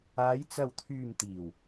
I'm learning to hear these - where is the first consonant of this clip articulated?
palate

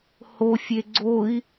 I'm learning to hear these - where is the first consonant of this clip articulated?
throat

